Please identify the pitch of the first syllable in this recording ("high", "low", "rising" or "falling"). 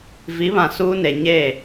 rising